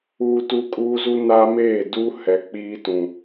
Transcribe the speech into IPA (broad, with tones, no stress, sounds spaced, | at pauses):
uː˦ t u˦ kʼ uː˦ z u˦ n a˦ m eː˦˨ d u˦ h ɛ˨ k͡p iː˦ t ũ˨